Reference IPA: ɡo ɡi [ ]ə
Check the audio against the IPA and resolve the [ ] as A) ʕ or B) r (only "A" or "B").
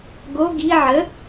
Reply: A